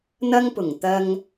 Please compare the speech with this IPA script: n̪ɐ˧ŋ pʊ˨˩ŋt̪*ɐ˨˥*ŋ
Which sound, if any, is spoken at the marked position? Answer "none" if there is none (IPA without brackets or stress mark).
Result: ɐ˧